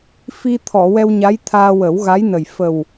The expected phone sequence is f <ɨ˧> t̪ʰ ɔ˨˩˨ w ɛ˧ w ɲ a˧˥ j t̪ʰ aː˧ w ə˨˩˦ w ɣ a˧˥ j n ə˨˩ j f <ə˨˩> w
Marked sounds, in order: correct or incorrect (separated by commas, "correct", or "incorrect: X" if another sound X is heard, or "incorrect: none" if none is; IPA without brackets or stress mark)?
incorrect: i˧, correct